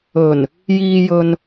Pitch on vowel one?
low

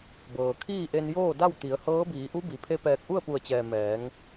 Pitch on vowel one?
low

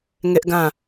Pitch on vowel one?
high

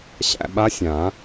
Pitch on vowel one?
falling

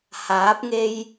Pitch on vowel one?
rising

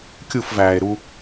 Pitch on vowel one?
falling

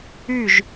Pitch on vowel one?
falling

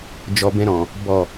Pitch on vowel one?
low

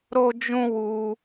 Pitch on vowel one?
high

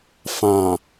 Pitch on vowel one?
low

